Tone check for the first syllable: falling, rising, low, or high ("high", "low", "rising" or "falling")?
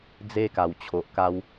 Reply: high